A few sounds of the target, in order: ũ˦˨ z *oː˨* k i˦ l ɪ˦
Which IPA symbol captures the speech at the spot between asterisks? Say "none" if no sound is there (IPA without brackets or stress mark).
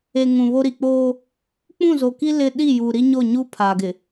o˨